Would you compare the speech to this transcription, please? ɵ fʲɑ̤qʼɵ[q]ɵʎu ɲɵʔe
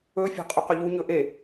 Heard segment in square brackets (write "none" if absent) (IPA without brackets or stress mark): q